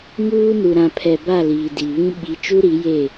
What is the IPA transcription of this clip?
ŋ uː˦ n u˨ ɾ ã˨ pʰ ɛ˨ b a˦˨ l iː˨ d i˨ β ĩ˦ ɓ i˨˦ t͡ʃ u˦ ɾ i˨˦ j e˦˨

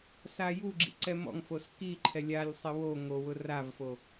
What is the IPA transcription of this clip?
s a j u ɡ͡ǁ ḭ ǀ ɛ m ɔ̰ ŋ f o s k i ǃʰ ɛ lʲ a lʲ sˤ ɪ w o ŋ o w ʊ r a v f o

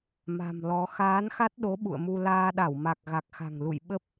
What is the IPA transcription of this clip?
m a̤˨˩ m l ɔ˨˦ x aː˨˦ n x a˦˥ t̚ ɗ o˨˦ ɓ ṵ˧˨ ə̯ m u˧ l aː˧ ɗ a˧˩ w m a˨˩ k̚ ɣ a˨˩ k̚ x a̤˨˩ ŋ l ṵ˧˨ j ɓ ə˦˥ p̚

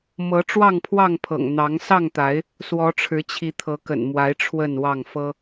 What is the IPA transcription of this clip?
m ɤ˨˦ ʈ͡ʂ w ɑ˥˨ ŋ pʰ w ɑ˥˨ ŋ pʰ ɤ̰˨˩ ŋ n̪ ɑ˨˦ ŋ s ɑ˥˨ ŋ t̪ a˨˦ ɪ̯ | s w ɔ˨˦ ʈ͡ʂʰ ɻ̩˨˦ t͡ɕʰ i˨˦ t̪ʰ ɤ˨˦ k ə̰˨˩ n m w a˨˦ ɪ̯ ʈ͡ʂʰ w ə˥˨ n w ɑ˥˨ ŋ f ɤ˦

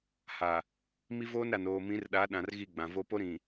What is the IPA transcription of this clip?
h a˨ | m i˦ v oː˦ n ɾ a˨ n oː˨ m ĩ˨˦ r ɗ a˨˦ ɗ ã˨ r ɣ i˦˨ ɡ͡b ã˨ v o˦ p o˦ ɾ ĩ˨

